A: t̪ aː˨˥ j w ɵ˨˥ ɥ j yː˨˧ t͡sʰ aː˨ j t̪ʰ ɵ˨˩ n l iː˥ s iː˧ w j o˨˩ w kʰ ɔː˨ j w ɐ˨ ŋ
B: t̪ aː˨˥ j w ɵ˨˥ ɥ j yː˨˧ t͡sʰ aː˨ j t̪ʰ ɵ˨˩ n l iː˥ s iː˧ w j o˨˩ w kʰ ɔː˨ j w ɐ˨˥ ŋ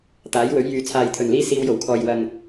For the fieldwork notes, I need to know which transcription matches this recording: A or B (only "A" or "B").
A